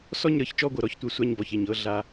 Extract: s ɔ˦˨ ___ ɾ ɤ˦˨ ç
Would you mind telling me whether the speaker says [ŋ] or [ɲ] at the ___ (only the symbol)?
ɲ